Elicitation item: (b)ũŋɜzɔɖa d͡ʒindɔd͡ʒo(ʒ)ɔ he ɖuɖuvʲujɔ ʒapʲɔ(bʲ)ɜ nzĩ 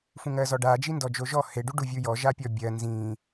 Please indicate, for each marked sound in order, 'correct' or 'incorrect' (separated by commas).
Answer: incorrect, correct, correct